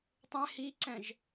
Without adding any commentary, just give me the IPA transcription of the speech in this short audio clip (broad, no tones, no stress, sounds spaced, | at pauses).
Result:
tˤ ɛ̃ h i ǀ ɛ̃ ʒ